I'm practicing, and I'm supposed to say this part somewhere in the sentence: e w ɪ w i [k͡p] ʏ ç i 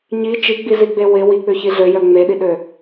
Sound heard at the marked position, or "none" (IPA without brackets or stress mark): k͡p